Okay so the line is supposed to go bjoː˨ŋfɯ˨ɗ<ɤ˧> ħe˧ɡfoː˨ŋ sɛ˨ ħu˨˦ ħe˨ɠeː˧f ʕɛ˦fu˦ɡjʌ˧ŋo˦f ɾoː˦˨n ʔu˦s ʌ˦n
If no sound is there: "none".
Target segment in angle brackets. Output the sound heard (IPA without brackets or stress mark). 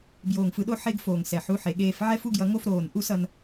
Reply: o˧